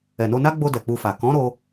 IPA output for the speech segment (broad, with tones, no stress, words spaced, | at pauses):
ɛ˨no˧na˦ɡ͡bo˧ dɛ˨k͡pu˧fa˨ kɔ̃˨˦ ɾo˦